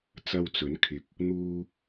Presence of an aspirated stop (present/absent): present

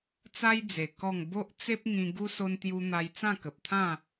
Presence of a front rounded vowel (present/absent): absent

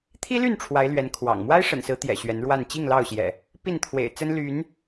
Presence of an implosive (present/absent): absent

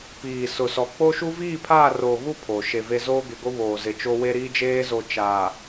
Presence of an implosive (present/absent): absent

